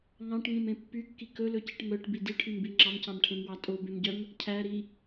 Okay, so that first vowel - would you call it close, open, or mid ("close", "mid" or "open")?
open